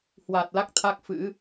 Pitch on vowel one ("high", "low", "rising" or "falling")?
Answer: low